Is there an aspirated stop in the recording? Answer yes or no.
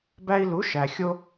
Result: no